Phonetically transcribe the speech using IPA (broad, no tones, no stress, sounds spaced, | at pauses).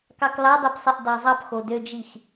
k ɑ k l ɑ dˤ ɯ p sˤ e ʔ d ɑ zˤ ɑ p x o d ø d͡ʒ i x